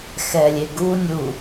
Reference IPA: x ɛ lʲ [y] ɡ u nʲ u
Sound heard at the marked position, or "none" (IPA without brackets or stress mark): e